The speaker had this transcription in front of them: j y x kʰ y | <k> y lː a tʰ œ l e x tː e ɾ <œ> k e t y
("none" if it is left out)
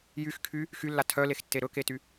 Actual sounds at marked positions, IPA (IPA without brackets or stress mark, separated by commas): x, ɵ